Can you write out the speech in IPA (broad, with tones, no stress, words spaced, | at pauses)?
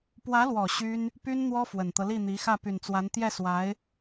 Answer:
pwä˧˥lwɔ˨˩ ɕy˥n | py˥nn̪wɔ˥ fwə˨˩nt̪ɤ˦li˥˩n̪i˧˥ xä˥˩py˨˩nt͡swa˧˥n t̪jɛ˥˩swa˧˥ɪ̯